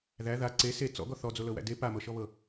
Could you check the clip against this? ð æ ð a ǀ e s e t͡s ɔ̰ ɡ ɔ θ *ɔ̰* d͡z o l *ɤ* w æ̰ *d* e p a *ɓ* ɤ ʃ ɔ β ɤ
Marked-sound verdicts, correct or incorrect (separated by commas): incorrect, correct, correct, incorrect